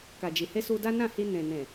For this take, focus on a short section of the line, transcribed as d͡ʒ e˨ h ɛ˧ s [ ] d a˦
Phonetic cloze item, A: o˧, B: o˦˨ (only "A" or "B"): A